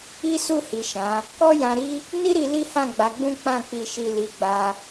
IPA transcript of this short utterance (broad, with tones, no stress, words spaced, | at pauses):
i˦su˦˨hi˨ ʃã˨˦ | kɔ˦jã˧ɾi˦ | ni˦ɾi˧ li˦hã˦˨ɡ͡ba˨˦ ɡ͡bũ˦k͡pã˦˨k͡pi˧ʃi˧ li˧ɡ͡ba˦